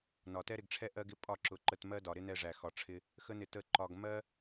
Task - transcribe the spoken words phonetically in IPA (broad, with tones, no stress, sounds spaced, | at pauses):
n ɒ˨ t ɛ˦ ɾ ɪ˧ ɡ ʈ͡ʂʰ ɛ˦ ʔ ɜ˦ ɡ ɪ˦ pʼ ɒ˦˨ ǁ ʊ˨ ǃ ə˧ t m ɜ˦ d ɒ˨ ɾ ɪ˦ n ɛ˦˨ ʐ æ˨ x ɒ˨ ʈ͡ʂʰ ɪ˦ | x ə˦ n ɪ˧ t ə˦˨ ǃ ɒ˧ ɡ m ɜ˦